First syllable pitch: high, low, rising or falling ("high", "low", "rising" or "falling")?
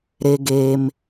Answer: high